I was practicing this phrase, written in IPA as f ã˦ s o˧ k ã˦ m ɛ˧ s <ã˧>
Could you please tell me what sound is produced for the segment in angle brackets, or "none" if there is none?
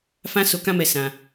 ã˧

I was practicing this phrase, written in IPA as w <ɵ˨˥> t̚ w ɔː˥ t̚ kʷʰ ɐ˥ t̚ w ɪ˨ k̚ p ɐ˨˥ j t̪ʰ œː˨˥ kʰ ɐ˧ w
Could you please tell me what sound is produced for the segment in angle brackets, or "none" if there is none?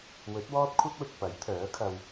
ɵ˨˥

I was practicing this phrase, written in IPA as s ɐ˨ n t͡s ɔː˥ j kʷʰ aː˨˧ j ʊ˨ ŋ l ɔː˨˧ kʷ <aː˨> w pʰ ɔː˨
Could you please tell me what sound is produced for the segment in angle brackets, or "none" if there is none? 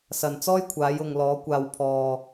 aː˨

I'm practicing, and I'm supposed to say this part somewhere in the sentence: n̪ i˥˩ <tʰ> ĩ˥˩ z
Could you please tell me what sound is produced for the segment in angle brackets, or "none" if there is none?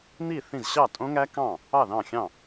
θ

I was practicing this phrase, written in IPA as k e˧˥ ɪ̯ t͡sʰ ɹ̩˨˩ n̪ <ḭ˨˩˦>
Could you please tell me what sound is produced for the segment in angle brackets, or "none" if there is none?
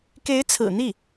i˥˩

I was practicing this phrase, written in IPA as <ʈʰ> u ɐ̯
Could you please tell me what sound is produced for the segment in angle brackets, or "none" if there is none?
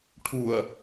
ʈʰ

